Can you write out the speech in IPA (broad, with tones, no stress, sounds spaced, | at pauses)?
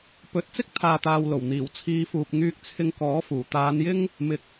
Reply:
p ɵ˨˥ t̚ t͡s ɪ˥ k̚ t̪ʰ aː˨ t̪ aː˨ w l o˨˩ w n̪ iː˨˩ w t͡sʰ iː˨˧ f uː˨ p̚ ŋ yː˧ k̚ t͡sʰ ɪ˧ ŋ k ɔː˨˥ f uː˨˩ t̪ aː˨˧ n j ɪ˥ ŋ | m ɪ˨˥ k̚